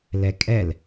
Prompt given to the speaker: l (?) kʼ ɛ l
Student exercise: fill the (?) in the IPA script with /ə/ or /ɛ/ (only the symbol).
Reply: ɛ